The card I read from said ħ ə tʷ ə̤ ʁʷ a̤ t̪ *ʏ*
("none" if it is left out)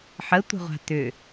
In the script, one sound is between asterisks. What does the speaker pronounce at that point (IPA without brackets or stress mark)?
ʏ